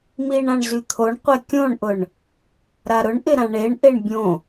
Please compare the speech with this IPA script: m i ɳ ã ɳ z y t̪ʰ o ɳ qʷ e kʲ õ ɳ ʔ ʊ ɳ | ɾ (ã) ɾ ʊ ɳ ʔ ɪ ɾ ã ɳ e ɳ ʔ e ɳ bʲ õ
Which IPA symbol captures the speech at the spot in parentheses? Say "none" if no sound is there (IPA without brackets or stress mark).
a